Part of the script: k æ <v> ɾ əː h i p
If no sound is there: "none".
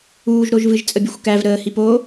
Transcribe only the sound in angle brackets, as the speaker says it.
v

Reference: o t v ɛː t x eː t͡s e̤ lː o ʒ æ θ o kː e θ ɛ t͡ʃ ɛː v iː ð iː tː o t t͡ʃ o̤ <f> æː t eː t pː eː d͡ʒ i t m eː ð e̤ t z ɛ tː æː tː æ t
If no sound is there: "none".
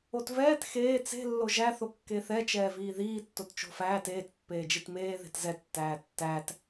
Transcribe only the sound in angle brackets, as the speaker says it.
f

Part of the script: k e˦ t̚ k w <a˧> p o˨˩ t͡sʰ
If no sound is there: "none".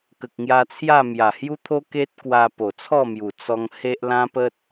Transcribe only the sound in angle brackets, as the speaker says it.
a˧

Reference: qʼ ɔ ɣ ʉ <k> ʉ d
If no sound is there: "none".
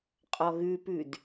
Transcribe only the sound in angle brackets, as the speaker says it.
p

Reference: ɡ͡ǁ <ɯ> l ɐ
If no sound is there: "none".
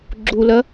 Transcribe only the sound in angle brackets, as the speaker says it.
u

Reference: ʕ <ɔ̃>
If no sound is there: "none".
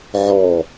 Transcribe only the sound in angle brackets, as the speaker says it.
ɔ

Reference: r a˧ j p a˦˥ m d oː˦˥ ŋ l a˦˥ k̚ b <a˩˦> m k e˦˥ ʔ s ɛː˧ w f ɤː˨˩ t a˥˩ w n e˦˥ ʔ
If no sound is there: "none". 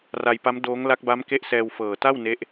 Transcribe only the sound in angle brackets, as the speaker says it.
a˦˥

